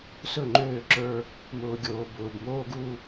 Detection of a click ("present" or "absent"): present